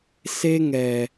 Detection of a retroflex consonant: absent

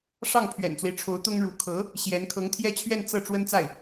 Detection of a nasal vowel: absent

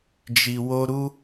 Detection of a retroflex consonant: absent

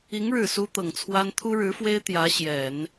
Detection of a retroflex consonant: present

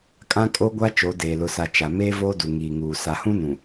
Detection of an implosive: absent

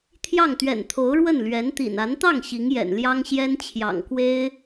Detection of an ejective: absent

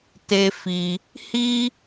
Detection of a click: absent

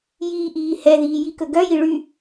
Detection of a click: absent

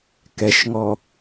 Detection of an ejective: absent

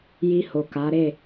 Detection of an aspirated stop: absent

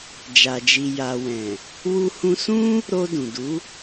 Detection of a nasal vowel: present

